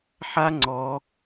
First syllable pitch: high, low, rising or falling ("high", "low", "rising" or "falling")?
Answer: high